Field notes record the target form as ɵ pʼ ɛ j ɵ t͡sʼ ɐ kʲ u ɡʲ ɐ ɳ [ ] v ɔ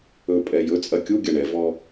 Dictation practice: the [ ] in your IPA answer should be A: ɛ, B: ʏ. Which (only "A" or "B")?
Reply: A